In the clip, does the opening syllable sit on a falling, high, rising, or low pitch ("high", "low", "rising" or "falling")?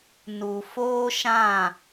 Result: low